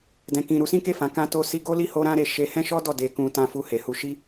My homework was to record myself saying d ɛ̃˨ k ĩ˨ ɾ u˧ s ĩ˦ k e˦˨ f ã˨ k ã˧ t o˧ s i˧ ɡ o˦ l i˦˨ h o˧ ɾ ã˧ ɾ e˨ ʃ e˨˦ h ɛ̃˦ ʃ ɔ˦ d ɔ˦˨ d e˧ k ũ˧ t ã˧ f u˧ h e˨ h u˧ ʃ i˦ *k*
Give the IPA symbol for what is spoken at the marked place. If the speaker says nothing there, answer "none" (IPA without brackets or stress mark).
none